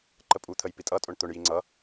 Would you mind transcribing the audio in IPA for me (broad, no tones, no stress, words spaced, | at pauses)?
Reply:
ǃəpʼu t̪ʰəjpitʼʌ tʼʊɳt̪ʊɳ jiŋ͡ǀʌ